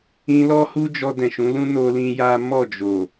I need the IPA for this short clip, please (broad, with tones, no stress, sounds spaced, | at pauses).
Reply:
ĩ˧ l ɔ˦ h u˦ d͡ʒ ɔ˧ d ɛ̃˨ ʃ ũ˨˦ l ũ˦ n o˧ l ĩ˧ j a˦ m ɔ˦˨ d͡ʒ o˨